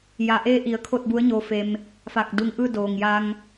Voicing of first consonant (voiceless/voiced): voiced